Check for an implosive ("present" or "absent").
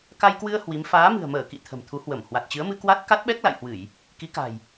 present